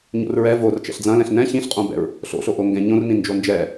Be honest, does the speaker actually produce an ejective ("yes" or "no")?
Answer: yes